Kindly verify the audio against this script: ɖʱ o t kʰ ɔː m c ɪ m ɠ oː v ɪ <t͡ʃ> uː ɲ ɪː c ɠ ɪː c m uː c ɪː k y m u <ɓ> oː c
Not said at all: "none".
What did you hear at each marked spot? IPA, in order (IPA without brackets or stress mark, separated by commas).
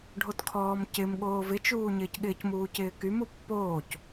t͡ʃ, pː